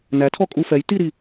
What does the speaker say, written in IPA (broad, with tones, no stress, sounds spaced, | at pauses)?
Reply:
n æ˨˥ tʰ ɔ˥˩ kʼ u˥˧ f ɛ˨˥ j t i˥˧ ɾ i˥˩